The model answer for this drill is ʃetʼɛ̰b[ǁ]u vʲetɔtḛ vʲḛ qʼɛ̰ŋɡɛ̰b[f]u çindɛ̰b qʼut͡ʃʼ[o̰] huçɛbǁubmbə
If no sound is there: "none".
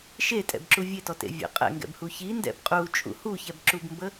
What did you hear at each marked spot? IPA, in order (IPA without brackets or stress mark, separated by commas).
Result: ǁ, h, ṵ